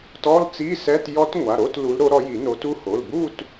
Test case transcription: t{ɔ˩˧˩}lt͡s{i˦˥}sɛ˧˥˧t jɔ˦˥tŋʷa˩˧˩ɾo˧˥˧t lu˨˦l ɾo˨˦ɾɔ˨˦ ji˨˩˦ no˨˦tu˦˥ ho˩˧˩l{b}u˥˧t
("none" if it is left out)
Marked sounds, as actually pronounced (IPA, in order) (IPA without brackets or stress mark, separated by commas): ɔ˧˥˧, i˧˥˧, b